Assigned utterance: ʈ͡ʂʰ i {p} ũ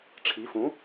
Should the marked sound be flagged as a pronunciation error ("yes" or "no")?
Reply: yes